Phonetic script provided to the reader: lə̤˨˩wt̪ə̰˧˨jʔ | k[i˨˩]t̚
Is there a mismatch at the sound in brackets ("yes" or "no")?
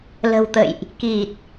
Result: no